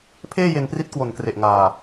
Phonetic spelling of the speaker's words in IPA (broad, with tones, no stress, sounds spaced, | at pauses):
pʰ eː˥˩ j e˧ n p r i˦˥ t̚ k w o˨˩ n k r e˨˩ ʔ ŋ aː˨˩